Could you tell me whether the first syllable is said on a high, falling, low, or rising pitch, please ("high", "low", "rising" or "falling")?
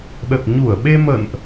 low